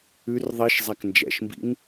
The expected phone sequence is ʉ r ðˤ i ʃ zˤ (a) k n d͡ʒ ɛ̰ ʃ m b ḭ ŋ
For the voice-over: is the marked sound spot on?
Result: no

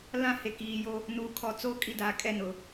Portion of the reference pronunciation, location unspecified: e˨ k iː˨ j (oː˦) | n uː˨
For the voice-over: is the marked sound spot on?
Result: no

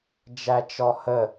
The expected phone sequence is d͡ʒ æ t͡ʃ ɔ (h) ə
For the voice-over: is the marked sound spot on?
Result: yes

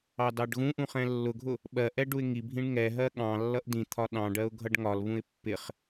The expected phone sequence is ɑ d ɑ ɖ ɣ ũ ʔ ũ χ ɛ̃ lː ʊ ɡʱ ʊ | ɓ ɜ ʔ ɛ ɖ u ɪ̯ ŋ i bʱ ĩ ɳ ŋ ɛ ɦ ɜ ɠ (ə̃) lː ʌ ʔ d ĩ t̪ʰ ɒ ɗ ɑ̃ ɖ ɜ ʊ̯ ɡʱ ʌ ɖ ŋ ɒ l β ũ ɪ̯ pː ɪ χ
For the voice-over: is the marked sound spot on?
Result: no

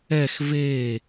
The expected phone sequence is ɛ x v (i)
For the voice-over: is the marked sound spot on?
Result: no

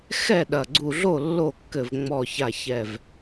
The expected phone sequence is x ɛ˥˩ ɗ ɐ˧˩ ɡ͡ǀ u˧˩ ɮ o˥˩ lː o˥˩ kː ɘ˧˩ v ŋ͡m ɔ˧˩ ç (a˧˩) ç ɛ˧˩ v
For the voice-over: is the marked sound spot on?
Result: yes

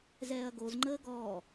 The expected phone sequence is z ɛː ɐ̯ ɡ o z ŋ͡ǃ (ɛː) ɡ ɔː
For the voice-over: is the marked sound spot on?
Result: no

